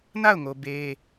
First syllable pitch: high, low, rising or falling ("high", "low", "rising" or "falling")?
falling